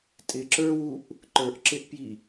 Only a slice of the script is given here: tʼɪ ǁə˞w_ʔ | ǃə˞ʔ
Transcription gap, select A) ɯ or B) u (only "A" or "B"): B